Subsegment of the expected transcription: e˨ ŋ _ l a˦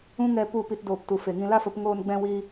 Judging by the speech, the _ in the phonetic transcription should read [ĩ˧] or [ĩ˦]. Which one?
ĩ˧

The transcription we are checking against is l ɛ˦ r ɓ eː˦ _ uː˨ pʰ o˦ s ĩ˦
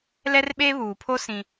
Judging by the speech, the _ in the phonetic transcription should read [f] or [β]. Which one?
β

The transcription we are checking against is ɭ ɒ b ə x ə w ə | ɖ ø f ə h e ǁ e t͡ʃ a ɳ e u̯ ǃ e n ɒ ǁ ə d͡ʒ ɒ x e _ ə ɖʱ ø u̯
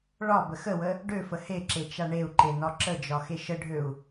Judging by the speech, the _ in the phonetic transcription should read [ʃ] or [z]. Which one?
ʃ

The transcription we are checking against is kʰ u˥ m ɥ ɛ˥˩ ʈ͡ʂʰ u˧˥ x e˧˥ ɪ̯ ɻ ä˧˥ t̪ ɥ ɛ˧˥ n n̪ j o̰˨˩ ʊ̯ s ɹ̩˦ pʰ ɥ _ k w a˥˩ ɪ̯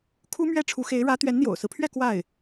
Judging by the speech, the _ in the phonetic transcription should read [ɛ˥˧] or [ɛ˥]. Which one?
ɛ˥˧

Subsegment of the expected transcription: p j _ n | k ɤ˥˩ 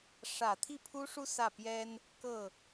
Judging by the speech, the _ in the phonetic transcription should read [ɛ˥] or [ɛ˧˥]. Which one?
ɛ˥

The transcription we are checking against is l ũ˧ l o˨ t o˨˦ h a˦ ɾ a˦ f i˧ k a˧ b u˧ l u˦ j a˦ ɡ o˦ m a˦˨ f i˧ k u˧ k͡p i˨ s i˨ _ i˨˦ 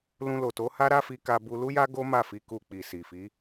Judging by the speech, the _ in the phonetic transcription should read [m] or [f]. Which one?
f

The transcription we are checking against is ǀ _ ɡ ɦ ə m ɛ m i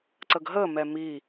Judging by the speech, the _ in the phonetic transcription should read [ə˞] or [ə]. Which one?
ə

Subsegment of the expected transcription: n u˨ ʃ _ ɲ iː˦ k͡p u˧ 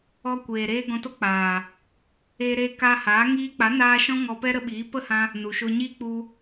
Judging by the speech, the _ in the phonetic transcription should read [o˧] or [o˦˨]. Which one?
o˧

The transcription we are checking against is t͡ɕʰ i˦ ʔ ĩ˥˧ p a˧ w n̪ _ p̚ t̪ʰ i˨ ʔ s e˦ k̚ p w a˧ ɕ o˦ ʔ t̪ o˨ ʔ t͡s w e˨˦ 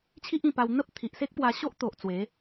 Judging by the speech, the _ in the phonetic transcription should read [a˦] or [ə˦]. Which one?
ə˦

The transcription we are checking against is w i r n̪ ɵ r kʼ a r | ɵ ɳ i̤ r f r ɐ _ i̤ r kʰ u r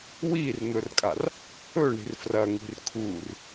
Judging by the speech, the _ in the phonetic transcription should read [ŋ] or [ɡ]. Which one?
ŋ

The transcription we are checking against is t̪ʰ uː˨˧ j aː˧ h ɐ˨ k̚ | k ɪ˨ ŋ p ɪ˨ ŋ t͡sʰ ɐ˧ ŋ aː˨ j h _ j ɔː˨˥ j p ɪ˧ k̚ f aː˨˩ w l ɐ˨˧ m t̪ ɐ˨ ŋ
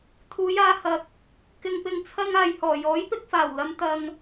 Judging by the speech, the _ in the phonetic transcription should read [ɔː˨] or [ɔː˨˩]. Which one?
ɔː˨˩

